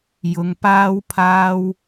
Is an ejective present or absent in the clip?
absent